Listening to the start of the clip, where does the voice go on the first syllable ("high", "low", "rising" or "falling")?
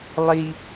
high